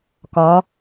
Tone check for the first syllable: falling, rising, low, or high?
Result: rising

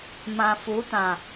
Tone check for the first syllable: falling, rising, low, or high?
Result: low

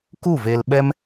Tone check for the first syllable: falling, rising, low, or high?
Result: falling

